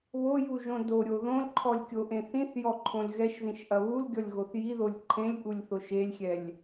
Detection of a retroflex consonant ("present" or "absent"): absent